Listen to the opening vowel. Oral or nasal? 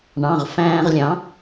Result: nasal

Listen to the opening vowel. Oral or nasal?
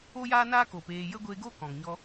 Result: oral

